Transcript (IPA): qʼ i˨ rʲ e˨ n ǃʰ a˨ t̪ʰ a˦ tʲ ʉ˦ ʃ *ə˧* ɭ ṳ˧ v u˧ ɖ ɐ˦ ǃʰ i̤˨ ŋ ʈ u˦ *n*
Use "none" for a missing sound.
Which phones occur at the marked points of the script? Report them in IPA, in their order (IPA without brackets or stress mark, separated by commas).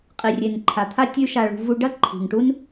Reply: a˧, n